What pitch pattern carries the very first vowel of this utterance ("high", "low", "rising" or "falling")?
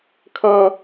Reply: high